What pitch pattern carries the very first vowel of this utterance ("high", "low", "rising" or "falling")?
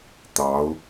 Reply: rising